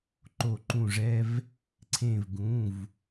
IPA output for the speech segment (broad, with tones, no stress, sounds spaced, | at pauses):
ǃ o˧˩ ǃ ũ˧˩ ʐ ɛ˦ v | ǀʰ ẽ˧˩ v ɡ ũ˩˧˩ v